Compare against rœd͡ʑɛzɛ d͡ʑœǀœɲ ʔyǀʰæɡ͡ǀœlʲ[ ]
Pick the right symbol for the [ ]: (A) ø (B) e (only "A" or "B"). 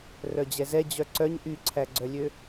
A